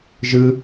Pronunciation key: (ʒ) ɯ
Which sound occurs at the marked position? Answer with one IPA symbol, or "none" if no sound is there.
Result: ʒ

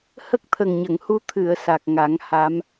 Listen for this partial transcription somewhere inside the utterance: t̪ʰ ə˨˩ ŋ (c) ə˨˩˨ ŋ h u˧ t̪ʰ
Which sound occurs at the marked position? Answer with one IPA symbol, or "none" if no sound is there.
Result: ɲ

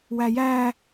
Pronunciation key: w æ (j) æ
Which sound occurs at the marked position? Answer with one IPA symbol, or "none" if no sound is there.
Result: j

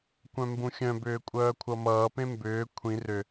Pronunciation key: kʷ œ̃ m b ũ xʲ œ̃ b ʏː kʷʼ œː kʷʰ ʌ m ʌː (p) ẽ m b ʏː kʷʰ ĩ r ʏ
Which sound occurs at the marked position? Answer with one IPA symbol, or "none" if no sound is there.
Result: p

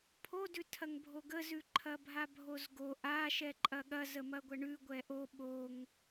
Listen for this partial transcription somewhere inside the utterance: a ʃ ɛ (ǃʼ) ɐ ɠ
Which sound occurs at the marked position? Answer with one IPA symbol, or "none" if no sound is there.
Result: ǃʼ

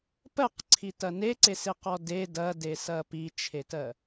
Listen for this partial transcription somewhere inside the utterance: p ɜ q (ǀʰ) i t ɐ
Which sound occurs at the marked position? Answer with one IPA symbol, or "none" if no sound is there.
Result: ǀʰ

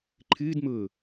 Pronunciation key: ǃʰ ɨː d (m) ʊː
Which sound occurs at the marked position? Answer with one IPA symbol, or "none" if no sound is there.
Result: m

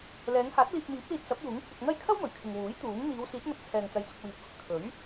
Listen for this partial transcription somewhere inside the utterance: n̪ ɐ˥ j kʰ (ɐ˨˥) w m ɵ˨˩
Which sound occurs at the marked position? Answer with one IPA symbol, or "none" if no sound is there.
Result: ɐ˥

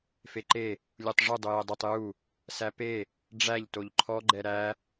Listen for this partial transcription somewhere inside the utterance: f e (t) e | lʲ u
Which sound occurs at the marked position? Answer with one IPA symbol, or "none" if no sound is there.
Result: ǃ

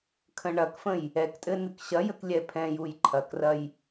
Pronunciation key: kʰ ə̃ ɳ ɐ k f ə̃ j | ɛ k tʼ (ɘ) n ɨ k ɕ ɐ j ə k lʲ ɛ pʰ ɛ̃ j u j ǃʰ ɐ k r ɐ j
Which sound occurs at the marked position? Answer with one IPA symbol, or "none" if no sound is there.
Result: ɘ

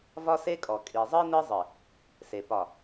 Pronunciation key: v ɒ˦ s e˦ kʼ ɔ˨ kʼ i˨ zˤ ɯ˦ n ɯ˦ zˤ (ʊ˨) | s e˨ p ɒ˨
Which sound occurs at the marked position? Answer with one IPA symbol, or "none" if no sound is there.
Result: ɯ˨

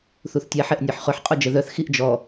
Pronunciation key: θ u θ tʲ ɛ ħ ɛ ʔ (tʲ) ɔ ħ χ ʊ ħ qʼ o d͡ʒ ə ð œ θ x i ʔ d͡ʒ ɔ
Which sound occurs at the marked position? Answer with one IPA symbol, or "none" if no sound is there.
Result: nʲ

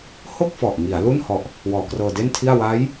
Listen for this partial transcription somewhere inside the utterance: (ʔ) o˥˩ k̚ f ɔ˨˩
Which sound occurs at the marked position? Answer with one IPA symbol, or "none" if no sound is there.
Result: h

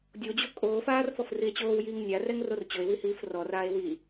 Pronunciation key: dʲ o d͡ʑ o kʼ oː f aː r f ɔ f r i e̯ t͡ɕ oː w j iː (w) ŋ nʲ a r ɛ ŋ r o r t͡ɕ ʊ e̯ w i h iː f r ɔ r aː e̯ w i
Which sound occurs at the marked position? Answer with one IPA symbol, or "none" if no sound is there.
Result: none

